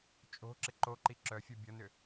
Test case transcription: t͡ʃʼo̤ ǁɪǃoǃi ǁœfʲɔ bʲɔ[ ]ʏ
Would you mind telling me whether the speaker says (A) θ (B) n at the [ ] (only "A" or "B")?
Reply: B